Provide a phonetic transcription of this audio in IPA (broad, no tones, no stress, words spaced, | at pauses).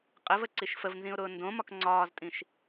qʼəvəǀiʃ fəvnzĩʊ̯ɾʊː ndõmɒk ŋ͡ǀɒːztʼĩʃ